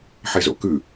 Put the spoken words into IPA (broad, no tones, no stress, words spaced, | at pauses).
ħezo̰kʉ